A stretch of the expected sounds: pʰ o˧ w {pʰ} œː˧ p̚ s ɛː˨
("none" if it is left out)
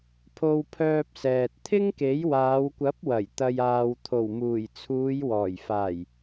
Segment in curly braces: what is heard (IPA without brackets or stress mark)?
pʰ